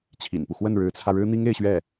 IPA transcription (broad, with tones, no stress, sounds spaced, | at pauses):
t͡ɕʰ ḭ˨˩ n p u˦ x w ə˥˩ n ɻ ɻ̩˧˥ t͡sʰ ä˧ ɻ ɻ̩˥ n̪ i˥ ŋ e˥˧ ɪ̯ ɕ ɥ ɛ˥˩